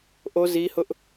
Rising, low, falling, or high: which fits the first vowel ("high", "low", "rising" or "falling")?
high